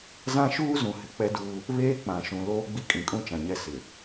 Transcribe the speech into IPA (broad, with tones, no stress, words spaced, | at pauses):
zã˦ ʃuː˦zũ˨ hɪ˨˦k͡pɛ˦duː˦ | βeː˦ k͡pã˨ʃũ˨ loː˦ɡ͡bi˦kʼĩ˨ kʼũ˦t͡ʃã˨ɲɛ˦˨ sɪ˨